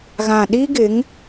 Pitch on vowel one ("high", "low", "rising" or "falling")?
low